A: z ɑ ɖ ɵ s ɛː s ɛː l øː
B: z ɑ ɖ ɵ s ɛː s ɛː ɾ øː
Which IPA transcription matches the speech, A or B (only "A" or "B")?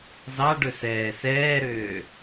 B